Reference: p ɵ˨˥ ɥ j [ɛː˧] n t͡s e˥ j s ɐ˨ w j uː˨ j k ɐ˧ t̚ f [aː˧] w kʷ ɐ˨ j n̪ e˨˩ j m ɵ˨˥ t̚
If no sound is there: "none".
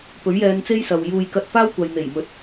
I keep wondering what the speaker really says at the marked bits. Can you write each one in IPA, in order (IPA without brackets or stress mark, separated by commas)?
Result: ɛː˧, aː˥